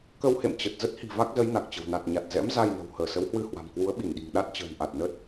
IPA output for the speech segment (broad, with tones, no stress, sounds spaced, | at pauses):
k ə˧ w h ḛ˧˨ m t͡ɕ ə˨˩ t̚ z ə˦˥ t̚ h i̤˨˩ v a˦˥ k̚ z ə˨˦ j n a˨˩ k̚ t͡ɕ ə̤˨˩ w n a˨˩ t̚ ɲ a˨˩ t̚ z ɛ̰˧˥ m z a˧ j n ə̤˨˩ w h əː˧˩ s ə˨˦ w h w ɨ˧ h w a̤˨˩ m k w u˨˦ ə̯ ɓ i˧˩ n ɗ i̤˨˩ ŋ ɗ a˦˥ t̚ t͡ɕ ə̤ː˨˩ n ʔ a˨˩ t̚ n ə˦˥ t̚